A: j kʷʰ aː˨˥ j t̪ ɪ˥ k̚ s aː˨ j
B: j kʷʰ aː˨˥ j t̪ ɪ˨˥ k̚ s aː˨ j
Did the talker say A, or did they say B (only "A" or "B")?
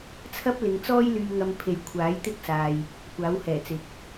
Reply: A